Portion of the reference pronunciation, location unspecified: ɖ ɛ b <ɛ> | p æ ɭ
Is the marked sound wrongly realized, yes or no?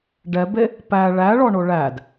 yes